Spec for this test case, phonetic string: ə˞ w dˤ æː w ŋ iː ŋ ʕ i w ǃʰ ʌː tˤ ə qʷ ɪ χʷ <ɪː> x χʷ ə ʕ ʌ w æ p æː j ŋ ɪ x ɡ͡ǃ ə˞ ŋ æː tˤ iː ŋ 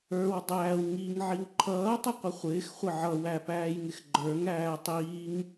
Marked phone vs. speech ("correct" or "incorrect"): correct